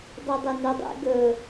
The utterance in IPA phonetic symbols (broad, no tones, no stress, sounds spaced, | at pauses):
dˤ ɨ dˤ ɵ n u dˤ ḛ ɡ ɵ